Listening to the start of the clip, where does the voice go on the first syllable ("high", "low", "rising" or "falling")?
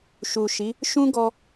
low